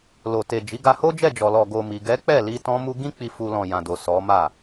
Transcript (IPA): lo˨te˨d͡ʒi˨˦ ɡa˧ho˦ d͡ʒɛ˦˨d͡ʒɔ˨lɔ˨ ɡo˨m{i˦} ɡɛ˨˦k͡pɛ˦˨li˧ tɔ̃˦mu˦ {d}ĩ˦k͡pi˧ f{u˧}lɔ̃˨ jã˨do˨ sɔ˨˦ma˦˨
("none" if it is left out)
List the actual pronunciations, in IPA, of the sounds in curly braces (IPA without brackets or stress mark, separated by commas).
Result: i˨, ɡ, u˧